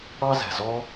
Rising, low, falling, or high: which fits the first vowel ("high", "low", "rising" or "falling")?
high